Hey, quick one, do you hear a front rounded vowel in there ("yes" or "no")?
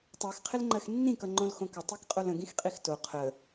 no